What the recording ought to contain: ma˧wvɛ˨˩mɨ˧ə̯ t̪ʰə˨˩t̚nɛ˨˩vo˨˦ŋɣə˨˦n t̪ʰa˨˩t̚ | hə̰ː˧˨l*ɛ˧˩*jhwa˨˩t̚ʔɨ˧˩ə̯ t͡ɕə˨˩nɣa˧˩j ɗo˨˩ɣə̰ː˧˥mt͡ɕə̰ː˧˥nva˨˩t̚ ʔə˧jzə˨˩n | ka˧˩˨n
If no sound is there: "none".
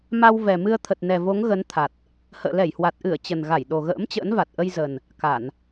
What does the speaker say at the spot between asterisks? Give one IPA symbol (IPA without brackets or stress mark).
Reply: ɛ˧˩